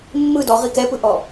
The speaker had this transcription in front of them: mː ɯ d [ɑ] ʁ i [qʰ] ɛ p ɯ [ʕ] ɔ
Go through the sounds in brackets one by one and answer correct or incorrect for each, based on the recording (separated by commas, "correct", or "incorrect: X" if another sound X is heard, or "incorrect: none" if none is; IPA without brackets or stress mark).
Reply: incorrect: ɔ, incorrect: k, incorrect: ʔ